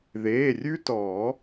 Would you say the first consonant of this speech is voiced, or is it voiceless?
voiced